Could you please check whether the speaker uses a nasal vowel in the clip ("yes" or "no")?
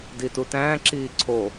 yes